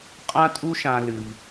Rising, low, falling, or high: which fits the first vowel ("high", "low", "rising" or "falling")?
high